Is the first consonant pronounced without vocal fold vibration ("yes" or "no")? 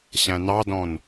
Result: yes